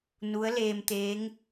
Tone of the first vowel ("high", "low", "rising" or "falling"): rising